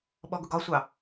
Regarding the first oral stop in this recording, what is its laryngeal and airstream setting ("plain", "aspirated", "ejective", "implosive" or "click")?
implosive